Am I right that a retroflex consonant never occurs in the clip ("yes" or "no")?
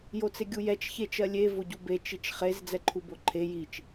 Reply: yes